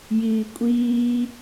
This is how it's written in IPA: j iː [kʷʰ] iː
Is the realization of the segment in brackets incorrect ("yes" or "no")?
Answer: yes